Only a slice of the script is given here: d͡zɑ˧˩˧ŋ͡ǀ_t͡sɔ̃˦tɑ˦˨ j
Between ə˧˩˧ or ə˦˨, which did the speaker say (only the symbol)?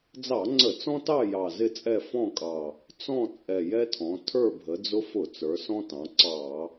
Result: ə˧˩˧